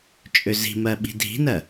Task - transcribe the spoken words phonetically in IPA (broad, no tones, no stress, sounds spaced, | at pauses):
t͡ʃʼ ø z i̤ m ɜ ɓ i̤ dʱ i̤ n ɜ